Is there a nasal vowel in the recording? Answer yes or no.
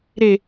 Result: no